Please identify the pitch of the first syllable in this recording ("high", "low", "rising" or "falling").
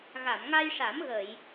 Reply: low